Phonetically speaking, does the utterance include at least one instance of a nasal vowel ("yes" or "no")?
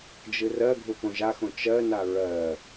yes